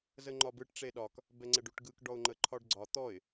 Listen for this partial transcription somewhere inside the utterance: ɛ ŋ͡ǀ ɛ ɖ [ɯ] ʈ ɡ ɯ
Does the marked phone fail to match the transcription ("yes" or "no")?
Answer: yes